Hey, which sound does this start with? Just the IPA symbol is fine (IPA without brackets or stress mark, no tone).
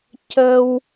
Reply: c